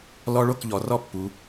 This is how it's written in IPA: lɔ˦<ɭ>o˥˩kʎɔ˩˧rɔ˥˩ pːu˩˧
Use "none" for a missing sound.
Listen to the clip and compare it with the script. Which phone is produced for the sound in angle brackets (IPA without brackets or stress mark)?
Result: ɭ